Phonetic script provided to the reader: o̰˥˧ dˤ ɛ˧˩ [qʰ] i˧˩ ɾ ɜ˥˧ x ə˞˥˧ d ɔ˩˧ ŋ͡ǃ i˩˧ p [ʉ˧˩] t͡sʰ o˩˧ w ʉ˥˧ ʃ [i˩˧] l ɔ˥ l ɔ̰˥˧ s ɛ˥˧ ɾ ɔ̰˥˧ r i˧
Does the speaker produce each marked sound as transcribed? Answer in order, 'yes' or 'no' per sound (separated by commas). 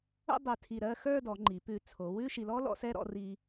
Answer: no, yes, no